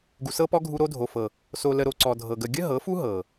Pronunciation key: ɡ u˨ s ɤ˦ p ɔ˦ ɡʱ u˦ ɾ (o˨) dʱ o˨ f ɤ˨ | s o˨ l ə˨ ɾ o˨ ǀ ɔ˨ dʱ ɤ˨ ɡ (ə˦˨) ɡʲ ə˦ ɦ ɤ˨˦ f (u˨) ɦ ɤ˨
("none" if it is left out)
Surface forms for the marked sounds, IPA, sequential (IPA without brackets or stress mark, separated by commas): o˦, ə˨, u˦